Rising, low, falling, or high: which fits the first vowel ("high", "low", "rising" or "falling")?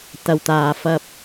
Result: low